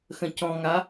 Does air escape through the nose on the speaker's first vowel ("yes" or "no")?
yes